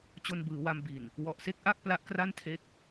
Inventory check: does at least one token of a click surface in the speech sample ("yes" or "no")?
no